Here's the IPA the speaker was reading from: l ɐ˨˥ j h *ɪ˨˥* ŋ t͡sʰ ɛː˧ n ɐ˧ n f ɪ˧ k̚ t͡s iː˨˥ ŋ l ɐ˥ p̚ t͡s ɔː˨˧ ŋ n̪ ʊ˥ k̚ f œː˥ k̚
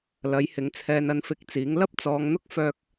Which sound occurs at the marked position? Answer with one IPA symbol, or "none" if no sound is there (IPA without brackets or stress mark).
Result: ɪ˨˥